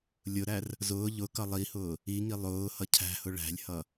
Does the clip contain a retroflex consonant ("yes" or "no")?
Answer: yes